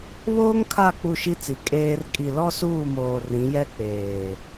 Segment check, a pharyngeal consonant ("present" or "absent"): absent